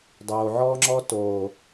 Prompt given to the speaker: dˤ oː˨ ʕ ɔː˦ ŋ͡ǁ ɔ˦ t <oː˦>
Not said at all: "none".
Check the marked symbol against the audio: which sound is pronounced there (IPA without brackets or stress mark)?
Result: oː˨